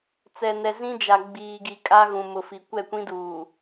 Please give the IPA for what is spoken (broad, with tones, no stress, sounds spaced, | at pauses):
t͡s ɛ˨ n ɛ˨ z ĩ˦ d͡ʒ a˨ ɡ͡b iː˨ ɡ i˨ kʼ a˦ ɣ ũ˨ m ʊ˨ f i˨ kʷ ɛ˦˨ kʷ ĩ˦ d uː˨